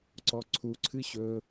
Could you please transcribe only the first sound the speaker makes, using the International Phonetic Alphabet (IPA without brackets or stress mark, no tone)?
ǀ